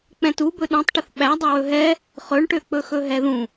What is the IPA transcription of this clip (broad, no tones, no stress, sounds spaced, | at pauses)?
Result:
k͡p ɛ̃ t u b ɵ ɗ õ tˤ ʈ ə θ ɓ æ dˤ ɵ w ɵ ɦ ɛ | χ ɵ ɳ ʈ ø k͡p ɵ x ɵ ɦ ɛ ð ũ